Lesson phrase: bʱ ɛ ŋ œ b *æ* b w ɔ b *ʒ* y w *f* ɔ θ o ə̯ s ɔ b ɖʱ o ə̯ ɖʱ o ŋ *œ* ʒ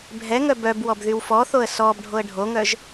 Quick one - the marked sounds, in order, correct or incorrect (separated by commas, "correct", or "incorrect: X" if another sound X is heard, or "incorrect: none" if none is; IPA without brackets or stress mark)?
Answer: incorrect: œ, incorrect: ð, correct, correct